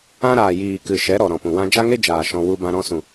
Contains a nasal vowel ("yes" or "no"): yes